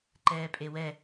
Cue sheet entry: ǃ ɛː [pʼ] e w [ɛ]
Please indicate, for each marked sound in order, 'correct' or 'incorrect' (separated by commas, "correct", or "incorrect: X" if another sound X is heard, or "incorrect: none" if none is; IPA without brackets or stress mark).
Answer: correct, correct